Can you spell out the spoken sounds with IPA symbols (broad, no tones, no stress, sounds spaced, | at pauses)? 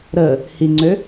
ɾ ə | h i ŋ͡ǀ ø